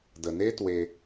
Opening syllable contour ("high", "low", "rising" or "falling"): low